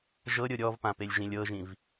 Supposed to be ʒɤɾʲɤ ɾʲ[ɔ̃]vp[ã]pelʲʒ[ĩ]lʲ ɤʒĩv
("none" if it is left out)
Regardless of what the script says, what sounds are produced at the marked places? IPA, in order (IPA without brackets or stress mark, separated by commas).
ɔ, ã, ĩ